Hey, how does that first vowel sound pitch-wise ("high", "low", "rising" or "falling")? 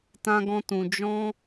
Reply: high